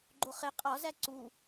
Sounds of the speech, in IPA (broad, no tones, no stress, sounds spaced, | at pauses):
ɡ͡ǃ o χ e qʼ ɒ z æ ǀ u